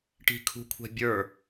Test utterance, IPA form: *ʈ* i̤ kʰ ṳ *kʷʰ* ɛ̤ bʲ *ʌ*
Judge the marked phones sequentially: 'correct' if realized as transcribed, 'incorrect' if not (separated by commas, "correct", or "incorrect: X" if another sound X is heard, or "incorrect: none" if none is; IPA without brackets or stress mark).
correct, correct, incorrect: ə˞